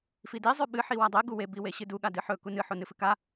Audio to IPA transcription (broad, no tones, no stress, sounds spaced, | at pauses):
f i d i zˤ ʉ ɓ ɨ ħ i w a dˤ e ɡ u w e b i w e ɕ ɨ d u ɠ a d ɨ ħ ɵ k u n ɨ ħ o n ɨ f ɨ k a